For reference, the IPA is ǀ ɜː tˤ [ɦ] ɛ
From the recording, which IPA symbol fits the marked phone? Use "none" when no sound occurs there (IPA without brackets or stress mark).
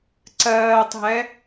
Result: ɦ